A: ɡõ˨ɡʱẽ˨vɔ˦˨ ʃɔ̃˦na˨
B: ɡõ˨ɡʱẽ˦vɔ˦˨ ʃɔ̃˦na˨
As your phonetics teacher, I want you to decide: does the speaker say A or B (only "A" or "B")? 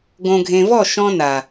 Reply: A